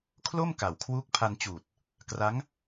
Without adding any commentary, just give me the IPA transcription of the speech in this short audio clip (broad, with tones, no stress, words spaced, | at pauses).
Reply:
kʰlo˥˩m ka˨˩wkʰwuː˦˥k̚pʰa˧n t͡ɕuː˨˩t̚ | kra˦˥ŋ